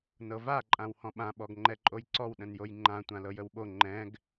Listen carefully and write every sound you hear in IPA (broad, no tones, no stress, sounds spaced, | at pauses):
n ɤ v a ǃʼ ã w h ɔ̃ ɓ ã ɓ ɔ ɡ ŋ͡ǃ ɛ ǃʼ o j ǀ ɔ w ɗ ə̃ n j o j ŋ͡ǃ ã tʷ ã l ɤ j ə w ɓ o ŋ͡ǃ ɛ̃ ɡ